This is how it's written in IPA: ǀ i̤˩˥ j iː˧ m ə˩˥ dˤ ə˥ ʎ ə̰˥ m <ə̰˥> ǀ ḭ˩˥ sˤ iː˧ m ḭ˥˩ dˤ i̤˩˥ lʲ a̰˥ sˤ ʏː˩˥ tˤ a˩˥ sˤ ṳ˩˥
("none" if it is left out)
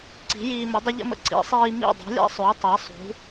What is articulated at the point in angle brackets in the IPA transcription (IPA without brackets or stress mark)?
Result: ə̰˥